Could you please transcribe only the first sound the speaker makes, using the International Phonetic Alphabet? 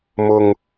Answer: m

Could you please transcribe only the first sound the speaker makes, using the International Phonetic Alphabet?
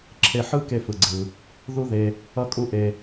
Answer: ǁʰ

